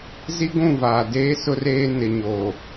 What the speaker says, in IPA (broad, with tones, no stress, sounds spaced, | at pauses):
z i˦ ɡʷ ũ˦˨ v aː˨ d eː˦ s ʊ˦ r eː˦ n ɪ˨ ɲ oː˨